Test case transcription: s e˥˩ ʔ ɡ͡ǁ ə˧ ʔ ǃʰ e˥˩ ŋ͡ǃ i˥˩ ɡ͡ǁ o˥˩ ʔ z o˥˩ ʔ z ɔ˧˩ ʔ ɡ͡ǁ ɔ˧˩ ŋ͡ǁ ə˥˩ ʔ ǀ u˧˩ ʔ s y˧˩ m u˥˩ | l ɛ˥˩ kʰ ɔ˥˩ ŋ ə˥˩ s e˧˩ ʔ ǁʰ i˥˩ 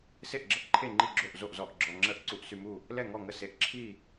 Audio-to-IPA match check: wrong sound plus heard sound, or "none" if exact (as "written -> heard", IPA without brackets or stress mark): kʰ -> ŋ